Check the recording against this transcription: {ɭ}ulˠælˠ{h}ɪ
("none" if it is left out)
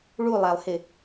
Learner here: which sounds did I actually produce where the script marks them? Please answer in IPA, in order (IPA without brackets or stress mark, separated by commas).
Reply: ɭ, h